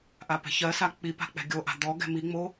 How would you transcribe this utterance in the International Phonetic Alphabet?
ʔapɛ̤çɜsa k͡pi pa̤k͡pɛ̤ɡʲoʔa̤ d̪ɔ ɡɛ̤miŋ͡mo

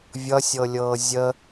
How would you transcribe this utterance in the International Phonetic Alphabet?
vʲʌsʲɤlʲɤː zʲə

